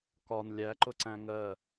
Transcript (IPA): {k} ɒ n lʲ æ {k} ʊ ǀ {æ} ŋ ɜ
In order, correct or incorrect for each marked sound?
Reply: correct, incorrect: ǃ, incorrect: æ̃

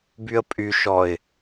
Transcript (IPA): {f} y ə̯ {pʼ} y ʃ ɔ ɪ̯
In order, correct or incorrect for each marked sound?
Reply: incorrect: b, correct

